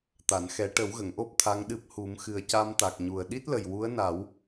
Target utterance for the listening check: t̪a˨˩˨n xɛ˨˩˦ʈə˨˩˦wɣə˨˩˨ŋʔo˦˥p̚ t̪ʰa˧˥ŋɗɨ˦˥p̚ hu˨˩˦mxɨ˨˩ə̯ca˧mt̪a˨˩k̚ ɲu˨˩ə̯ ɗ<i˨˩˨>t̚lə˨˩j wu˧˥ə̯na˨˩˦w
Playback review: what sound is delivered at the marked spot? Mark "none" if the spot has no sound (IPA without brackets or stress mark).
i˦˥